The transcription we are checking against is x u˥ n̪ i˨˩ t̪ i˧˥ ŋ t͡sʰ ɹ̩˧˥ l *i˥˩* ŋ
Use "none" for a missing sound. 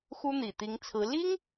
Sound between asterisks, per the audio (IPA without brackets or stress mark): i˥